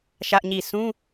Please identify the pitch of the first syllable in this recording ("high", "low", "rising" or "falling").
high